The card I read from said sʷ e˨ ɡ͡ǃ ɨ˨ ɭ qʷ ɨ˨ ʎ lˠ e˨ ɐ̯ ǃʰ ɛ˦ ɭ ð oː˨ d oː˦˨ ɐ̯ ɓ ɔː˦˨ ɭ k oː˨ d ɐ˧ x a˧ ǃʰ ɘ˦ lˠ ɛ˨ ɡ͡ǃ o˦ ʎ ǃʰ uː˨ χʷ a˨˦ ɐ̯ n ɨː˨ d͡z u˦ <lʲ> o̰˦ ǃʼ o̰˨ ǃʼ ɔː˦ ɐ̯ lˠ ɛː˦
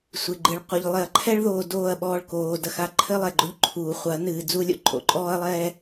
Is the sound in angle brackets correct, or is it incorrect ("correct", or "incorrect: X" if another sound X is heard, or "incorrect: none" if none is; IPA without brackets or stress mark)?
correct